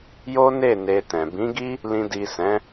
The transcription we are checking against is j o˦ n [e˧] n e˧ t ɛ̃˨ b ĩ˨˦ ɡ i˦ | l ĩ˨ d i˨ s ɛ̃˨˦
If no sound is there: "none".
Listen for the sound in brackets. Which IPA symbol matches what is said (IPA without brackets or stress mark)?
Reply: e˦˨